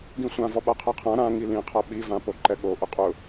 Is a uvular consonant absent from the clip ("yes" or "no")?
no